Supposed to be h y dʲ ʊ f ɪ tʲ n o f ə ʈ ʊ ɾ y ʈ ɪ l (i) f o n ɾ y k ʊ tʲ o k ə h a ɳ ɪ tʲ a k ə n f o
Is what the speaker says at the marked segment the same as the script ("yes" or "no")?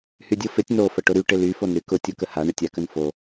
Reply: no